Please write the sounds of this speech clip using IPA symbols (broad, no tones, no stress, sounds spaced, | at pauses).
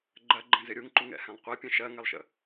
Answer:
ɡ͡ǃ ɜ ɡ͡ǃ ɛ̃ z ɪ ɾʲ u ŋ ǃ u ŋ ɛ̰ h ɛ̃ lˠ qʷ ɜ pʲ ɛ̃ ʃ ɜ ŋ ɛ lˠ ʃ ə̰